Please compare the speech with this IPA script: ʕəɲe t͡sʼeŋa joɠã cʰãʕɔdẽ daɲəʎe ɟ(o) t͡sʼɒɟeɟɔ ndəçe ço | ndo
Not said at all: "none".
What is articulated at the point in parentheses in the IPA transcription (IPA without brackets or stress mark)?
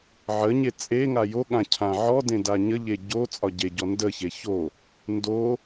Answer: o